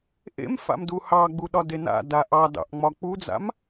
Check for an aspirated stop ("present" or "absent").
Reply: absent